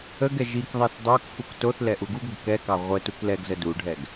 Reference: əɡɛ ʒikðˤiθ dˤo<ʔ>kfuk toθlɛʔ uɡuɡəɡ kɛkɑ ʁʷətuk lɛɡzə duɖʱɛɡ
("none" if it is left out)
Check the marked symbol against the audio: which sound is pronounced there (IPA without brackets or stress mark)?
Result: none